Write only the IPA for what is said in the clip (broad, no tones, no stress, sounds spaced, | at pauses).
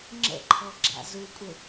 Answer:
ŋ͡ǁ ə̰ ǃʰ ɔ ɡ͡ǁ a̰ z u kʷʼ ɪ